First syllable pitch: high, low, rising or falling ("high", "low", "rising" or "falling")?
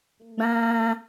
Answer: high